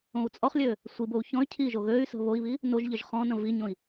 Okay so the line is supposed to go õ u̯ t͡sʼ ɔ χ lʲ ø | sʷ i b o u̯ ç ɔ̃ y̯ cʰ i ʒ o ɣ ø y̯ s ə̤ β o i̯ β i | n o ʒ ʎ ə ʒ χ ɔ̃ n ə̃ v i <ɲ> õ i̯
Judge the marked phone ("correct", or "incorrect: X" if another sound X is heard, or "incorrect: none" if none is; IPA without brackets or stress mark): correct